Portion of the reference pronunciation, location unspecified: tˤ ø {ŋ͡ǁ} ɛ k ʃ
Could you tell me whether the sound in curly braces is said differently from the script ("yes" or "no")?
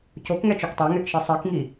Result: yes